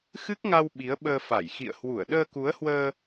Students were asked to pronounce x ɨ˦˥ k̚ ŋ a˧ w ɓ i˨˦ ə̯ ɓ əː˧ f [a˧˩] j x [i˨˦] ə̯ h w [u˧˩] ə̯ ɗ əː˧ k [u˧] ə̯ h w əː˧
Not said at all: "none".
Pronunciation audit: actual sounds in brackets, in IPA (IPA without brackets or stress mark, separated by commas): a˧˩, ḭ˧˨, u˧˩, u˨˦